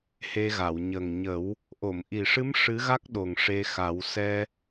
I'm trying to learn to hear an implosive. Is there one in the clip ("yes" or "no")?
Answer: yes